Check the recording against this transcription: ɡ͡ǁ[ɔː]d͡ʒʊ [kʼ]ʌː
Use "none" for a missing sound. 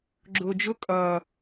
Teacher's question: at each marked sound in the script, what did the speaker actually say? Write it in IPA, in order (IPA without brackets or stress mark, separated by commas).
ʊː, kʼ